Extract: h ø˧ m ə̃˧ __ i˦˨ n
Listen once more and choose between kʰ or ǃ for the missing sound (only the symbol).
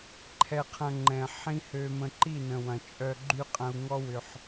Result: ǃ